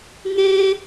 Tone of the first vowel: high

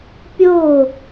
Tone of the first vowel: falling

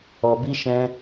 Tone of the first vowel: low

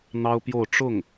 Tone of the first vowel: high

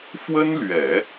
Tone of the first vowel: high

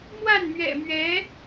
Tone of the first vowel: falling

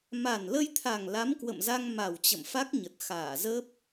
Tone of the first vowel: low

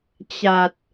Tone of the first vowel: low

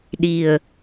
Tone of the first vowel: low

